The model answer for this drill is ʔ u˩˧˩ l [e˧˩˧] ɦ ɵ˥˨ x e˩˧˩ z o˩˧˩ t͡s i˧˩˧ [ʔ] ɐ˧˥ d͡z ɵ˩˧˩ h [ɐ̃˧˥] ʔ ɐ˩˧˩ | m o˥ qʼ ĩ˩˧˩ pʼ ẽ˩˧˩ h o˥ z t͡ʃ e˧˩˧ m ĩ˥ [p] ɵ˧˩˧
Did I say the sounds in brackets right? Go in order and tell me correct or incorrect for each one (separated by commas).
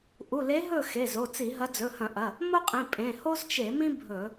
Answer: incorrect, incorrect, incorrect, incorrect